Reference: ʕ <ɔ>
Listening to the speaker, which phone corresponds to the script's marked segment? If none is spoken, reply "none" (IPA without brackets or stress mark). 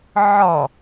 ɔ